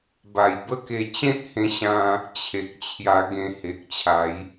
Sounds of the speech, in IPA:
b a˨˩ j b ə˦ k e˧ t͡ɕ ẽ˦ t̚ h ẽ˧ ɕ ã˧ | t͡ɕʰ e˨ k̚ t͡ɕʰ j a˧ ɡ ẽ˧ h e˨ k̚ t͡ɕʰ a˨˦ j

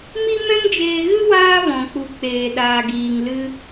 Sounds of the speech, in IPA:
m i˦ m ɛ̃˦ ŋ d͡ʒ eː˧ ɣ ɨ˦ w aː˦ v ɔ̃˨ k͡p u˨ k͡p eː˨ ɗ aː˨ ɡ iː˨ ŋ l ɨ˧

